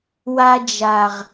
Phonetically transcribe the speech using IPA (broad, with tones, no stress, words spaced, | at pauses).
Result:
wa˧d͡ʒa˨ʁ